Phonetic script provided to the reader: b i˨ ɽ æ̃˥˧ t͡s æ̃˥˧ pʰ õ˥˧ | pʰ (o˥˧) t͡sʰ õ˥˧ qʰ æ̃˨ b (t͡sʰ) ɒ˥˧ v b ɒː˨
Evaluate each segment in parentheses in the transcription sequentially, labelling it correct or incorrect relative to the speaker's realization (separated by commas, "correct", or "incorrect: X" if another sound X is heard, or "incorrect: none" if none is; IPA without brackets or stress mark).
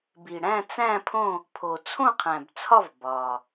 incorrect: o˨, correct